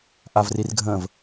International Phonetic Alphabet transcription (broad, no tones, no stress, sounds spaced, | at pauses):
ʔ a v r i r ɡʱ ə̃ː v